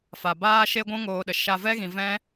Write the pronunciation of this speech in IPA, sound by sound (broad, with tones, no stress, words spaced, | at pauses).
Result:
fa˨baː˦ ʃe˦ɡʷũ˦ ŋoː˧ɗə˨ ʃa˧ vɛ˦ɣĩ˨ vɛ̃˦